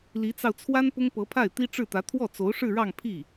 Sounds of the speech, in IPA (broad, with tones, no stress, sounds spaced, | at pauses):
l i˧˥ t͡s ɑ˧ ʊ̯ t͡sʰ w a˥ n p ʊ˥ ŋ p ɤ˧˥ pʰ a˥˩ ɪ̯ t̪ i˥ ʈ͡ʂ ɻ̩˥˩ t̪ ä˧˥ t̪ʰ w ɔ˥˩ t͡s o˧˥ ʊ̯ ʂ ɻ̩˥˧ ɻ ɑ˥˧ ŋ pʰ i˥˩